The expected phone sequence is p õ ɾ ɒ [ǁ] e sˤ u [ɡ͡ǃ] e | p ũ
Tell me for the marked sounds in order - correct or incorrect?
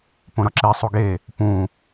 correct, incorrect

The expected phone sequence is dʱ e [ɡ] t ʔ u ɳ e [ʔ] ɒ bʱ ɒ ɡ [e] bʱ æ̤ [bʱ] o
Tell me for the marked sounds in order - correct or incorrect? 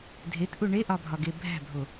incorrect, correct, correct, correct

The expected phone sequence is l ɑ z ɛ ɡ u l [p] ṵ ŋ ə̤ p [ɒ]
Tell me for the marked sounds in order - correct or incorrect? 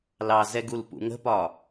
correct, correct

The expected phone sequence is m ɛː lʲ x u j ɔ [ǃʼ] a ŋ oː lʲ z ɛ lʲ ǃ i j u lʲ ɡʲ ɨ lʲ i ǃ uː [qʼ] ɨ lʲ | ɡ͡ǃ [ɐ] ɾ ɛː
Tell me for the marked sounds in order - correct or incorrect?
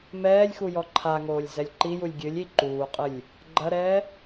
incorrect, correct, correct

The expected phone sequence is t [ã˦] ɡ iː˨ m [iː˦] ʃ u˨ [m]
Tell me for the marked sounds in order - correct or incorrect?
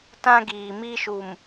correct, incorrect, correct

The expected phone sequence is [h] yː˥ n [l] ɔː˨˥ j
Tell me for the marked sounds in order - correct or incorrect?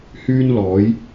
correct, correct

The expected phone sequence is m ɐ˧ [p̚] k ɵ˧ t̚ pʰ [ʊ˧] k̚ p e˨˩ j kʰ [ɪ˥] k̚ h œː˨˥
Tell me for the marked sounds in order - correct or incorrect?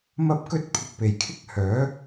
correct, incorrect, correct

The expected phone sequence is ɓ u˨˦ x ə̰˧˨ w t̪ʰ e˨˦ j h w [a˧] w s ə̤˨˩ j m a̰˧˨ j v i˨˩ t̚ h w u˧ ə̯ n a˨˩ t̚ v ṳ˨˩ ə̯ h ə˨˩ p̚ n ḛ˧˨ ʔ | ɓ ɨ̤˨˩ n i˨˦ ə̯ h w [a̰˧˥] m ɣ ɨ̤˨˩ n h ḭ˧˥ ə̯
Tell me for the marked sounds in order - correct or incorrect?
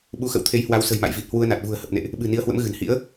incorrect, incorrect

